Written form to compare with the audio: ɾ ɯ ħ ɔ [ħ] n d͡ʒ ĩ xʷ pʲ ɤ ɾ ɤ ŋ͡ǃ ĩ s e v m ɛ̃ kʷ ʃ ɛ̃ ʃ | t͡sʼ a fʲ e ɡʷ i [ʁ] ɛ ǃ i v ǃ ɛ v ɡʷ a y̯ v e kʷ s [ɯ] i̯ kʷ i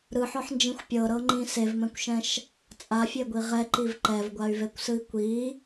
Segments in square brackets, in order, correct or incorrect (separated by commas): correct, correct, correct